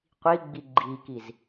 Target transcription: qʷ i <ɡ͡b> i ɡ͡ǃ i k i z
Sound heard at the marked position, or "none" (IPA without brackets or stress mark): ɡ͡b